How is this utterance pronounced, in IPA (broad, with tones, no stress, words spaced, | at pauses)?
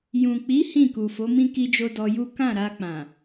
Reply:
jũ˨k͡pi˨˦ hĩ˦˨ku˨fo˨˦mĩ˦ ki˧d͡ʒo˧ dɔ˧ju˦ kã˦˨ɾa˧ k͡pã˨